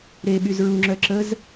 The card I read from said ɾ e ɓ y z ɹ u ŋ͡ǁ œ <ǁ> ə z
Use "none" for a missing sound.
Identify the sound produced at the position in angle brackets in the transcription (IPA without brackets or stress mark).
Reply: ǁ